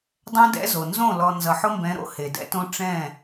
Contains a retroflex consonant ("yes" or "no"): yes